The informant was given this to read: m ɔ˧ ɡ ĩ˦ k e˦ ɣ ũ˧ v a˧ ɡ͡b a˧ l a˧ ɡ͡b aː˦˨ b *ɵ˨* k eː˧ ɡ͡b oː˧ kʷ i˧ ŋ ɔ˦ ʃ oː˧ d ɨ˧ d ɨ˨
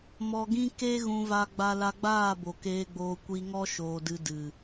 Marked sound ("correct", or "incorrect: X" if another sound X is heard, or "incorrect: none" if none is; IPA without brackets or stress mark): incorrect: o˨